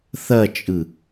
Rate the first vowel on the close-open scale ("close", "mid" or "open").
open